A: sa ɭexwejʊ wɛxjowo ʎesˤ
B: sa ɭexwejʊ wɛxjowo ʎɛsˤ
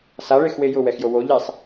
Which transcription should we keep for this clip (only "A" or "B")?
A